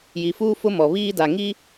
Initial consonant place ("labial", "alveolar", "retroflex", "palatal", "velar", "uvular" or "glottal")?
palatal